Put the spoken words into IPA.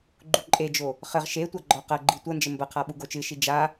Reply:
ɡ͡ǃ u ǃʼ e d͡ʒ o | χ ɘ ʁ ʃ e tʷ a ɡ͡ǃ ɔ q ɐ ɡ͡ǃ i tʷ ɐ n d͡ʒ ɘ m b ɐ qʰ a ɓ u ɡ o t͡ʃ ɨ ʃ i d͡ʒ a

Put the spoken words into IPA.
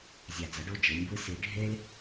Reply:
zʲ a˨ d͡z ʌ˩˥ ɖ o˥˩ d͡ʒ ɯ˩˥ nʲ b ɯ˥ s i˨˩˦ ɖʱ e˥ l

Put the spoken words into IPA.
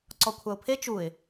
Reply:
ǀ ɔ kʷʰ a ʊ̯ pʰ e t͡ʃ u ɪ̯

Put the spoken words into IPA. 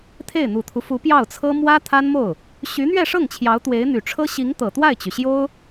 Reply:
t̪ʰ e˥˩ ɪ̯ n̪ u˨˩ t̪ʰ u˦ f u˧˥ p j ɑ˥˩ ʊ̯ t͡sʰ ɤ˥ m w ä˥ t̪ʰ a˥ n m o˥˩ ʊ̯ | ɕ y˧˥ n̪ ɥ ɛ˥˧ ʂ ɤ˥˩ ŋ t͡ɕʰ j ɑ˧˥ ʊ̯ t̪ w e˧˥ ɪ̯ n̪ y˨˩ ʈ͡ʂʰ ɤ˥ ɕ i˧˥ ŋ t̪ ɤ˨˩ t̪ w a˥˩ ɪ̯ t͡ɕ y˩ ɕ j o˥ ʊ̯

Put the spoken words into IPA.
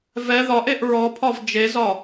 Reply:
v ɛ ð ɒ ʔ e ʔ ɹ ɔ pʰ ɒ v d͡ʒ e z ɒ

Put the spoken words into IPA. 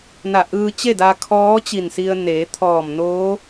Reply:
n a˧˩ ʔ ɯː˧ t͡ɕ e˥˨ d a˧ kʰ ɔː˧˥ t͡ɕ i˧˩ n s i˧ ə̯ n eː˩˧ t̪ʰ ɔː˧˩ m n oː˧˥

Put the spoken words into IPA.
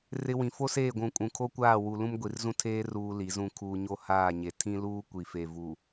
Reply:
r ɪ˦ w ĩ˨ f o˦ s eː˦˨ ɡʷ ũ˨ kʼ ũ˨ kʰ o˦ kʷ aː˦˨ w u˨ l ũ˦ m ɡʷ i˨ r z ũ˦ tʰ eː˦ r uː˦ l i˨˦ z ũ˦ kʰ uː˦ ɲ o˦ h aː˦˨ ɲ e˨ tʰ ĩ˦ l uː˦ kʷ i˨ f e˨ v u˨

